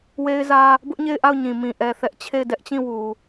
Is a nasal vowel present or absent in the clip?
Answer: present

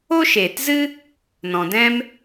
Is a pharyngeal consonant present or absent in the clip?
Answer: absent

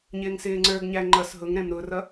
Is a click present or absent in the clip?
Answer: present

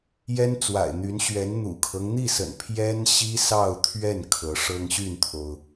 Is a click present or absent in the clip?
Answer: absent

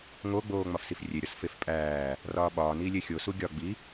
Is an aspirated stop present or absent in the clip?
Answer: absent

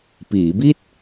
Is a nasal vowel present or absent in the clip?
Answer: absent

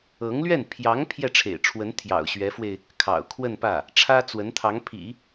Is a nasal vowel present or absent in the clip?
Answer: absent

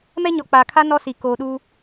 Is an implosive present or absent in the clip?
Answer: present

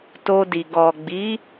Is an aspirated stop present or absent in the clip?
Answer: absent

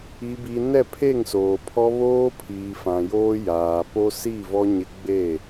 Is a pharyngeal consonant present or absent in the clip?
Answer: absent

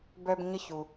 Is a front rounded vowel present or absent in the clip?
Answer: present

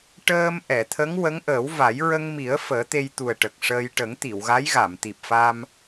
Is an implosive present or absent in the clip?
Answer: absent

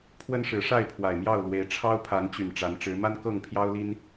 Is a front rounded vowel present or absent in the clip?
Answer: present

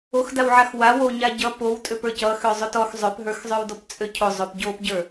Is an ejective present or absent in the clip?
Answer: present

